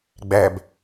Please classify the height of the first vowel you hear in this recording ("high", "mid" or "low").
low